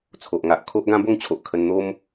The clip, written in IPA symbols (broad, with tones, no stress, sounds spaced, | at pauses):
t͡sʰ o˨ ʔ ŋ a˨ ʔ kʰ o˦ ʔ ɡ ã˦ b o˥˧ ŋ t͡ɕʰ o˨ ʔ kʰ ə˧ n n̪ o˦ m